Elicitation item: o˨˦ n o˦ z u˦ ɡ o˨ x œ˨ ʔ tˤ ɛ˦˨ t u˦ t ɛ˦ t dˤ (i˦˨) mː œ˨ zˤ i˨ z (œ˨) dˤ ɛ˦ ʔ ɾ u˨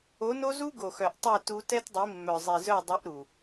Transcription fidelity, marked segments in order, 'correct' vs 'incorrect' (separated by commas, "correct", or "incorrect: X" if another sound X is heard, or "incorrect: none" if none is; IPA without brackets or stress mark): incorrect: i˨˦, incorrect: œ˦˨